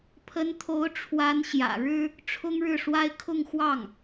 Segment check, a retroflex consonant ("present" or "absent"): present